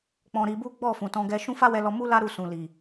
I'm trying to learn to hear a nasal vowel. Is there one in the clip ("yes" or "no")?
yes